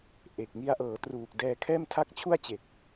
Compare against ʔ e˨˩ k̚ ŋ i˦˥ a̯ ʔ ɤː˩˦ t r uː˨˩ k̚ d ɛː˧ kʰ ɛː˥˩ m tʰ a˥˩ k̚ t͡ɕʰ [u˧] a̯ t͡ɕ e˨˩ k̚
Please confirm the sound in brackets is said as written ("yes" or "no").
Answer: no